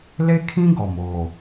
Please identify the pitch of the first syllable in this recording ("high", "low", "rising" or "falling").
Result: high